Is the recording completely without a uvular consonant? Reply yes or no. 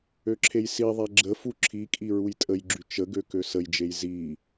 yes